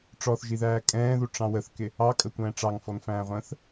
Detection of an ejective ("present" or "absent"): present